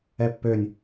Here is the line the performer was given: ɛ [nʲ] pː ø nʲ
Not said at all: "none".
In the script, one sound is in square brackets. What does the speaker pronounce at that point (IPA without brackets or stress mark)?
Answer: none